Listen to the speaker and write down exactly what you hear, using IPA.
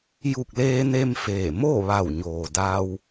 j u˧˩ k̚ l eː˧ n e˧ m f eː˧˩ m o˥˨ ʋ a˧˩ w ɲ oː˩ d a˧ w

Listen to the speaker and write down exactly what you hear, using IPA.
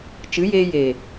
t͡ʃ ɨ˨˦ j eː˧ j e˨

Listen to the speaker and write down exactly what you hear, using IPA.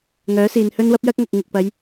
ŋ œː˨˥ s iː˨ n h ɵ˥ n w ɐ˥ p̚ j ɐ˥ k̚ ŋ ɐ˨ k̚ ŋ ɪ˨ k̚ p ɐ˨˧ j

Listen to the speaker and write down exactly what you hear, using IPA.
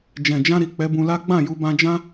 d͡ʒ ɛ̃˨ d͡ʒ ã˧ ɾ i˨ k͡p ɛ˨˦ b ũ˧ l a˦ ɡ͡b ã˦˨ j u˧ b ã˧ d͡ʒ ã˦

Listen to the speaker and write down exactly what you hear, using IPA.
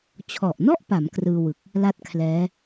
t͡ɕʰ ɔ˨˩ ʔ n ɔ˥˩ ʔ p a˩˦ m k r ɯː˧ w ɯ˨˩ k̚ | l a˥˩ t̚ kʰ l ɛː˦˥

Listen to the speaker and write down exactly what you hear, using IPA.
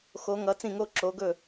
x o˨˦ ŋ ʌ˨˦ t͡s ĩ˥˩ ŋ oː˥ ǁ oː˨˦ ɡ ɵ˥˩

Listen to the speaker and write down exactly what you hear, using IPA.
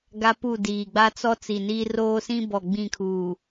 ɡ a˦ p u˦˨ d iː˨ ɡ͡b a˦ t͡s ɔ˦ t͡s i˨ n iː˦ r oː˦ s ĩ˦ b ɔ˨ ɡ͡b ĩ˦˨ kʰ uː˨

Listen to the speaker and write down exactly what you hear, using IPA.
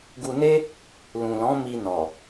ɡ u˧ n e˦ | l ũ˨ l ɔ̃˨˦ m i˧ n ɔ˨

